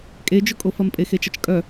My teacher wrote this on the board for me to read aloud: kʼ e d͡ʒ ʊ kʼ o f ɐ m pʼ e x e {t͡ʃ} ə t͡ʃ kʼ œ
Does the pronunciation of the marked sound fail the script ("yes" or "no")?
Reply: no